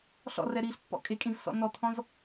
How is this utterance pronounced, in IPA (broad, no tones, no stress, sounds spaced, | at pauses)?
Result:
ɬ ɔ̰ r ɛ ɾ iː ɬ pː ɔ̰ kʼ e kʼ ĩ z s ɔ̰ n ɔ t̪ʰ ɔ̃ z